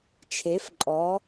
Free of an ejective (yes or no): no